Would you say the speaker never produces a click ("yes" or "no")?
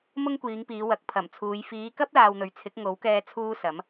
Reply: yes